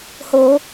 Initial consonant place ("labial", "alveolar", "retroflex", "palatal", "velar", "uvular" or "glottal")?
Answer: glottal